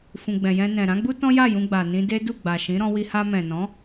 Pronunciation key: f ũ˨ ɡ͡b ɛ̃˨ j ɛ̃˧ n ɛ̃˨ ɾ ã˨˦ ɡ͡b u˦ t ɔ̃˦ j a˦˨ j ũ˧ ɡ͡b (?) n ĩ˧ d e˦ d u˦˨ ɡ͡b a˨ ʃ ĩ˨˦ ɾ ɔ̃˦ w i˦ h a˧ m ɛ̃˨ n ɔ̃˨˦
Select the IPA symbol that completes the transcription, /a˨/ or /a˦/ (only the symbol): a˨